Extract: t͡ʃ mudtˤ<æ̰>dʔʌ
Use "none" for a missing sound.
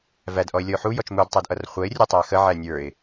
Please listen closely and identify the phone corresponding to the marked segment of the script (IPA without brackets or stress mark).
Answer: æ